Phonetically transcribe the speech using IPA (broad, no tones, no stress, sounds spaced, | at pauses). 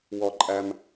w ɔ ǃʼ æ m